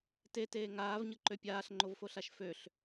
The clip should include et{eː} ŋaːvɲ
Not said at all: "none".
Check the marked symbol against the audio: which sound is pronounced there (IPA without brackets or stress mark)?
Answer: eː